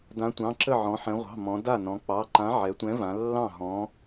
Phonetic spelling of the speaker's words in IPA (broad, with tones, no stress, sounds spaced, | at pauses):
d ã˨˥ tʷ ɑ̃˩˧˩ ǁ ə˥˩ ʕ ɔ̃˩˧ ħ ɛ̃˩˧ ʁʷ ɑ̤˩˧˩ m ɔ̃˩˧ d a˥˩ n ɔ̃˩˧ k͡p ɑ˩˧˩ ǃ ã˨˥ ʕ ɛ˩˧ tʷ ɛ̃˨˥ v ã˩˧ lː ɑ̃˥˩ ɦ ɔ̃˨˥